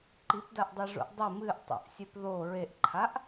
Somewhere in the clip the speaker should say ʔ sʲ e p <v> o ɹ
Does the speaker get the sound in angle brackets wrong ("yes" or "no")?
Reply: yes